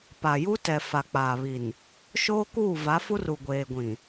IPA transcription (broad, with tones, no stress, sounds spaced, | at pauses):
p a˨ j u˦ t ɛ˨ f a˨ k͡p aː˨ β i˨ n | ʃ oː˦ k uː˦˨ v a˨˦ f u˦ r u˨ ɡʷ eː˨ ɡʷ ĩ˨